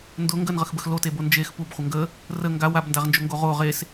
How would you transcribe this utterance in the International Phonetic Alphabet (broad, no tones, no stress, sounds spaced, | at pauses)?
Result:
n d ʊ ŋ ɡ ə n ʁ ə x b ə x l o t e b o n d͡ʒ e x p u b χʷ ə ŋ ɡ ə | r ə ŋ ɡ a w a b n d a ʁ n d͡ʒ ʊ ŋ ɡ o ʁ o ʁ e s